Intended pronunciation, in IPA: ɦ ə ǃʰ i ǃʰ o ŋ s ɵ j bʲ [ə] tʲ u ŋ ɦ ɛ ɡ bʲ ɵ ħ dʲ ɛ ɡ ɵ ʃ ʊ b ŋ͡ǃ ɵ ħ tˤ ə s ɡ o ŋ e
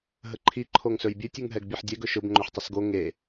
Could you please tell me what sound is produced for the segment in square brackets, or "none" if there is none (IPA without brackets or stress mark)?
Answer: ɨ